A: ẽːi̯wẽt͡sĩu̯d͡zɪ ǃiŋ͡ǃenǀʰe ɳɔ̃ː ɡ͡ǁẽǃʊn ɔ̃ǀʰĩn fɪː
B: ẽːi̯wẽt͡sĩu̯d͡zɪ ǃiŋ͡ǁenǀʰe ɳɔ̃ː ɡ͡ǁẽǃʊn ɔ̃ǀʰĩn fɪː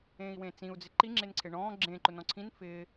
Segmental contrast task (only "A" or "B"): B